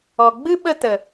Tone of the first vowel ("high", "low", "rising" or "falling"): low